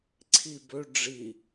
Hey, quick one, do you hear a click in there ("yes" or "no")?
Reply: yes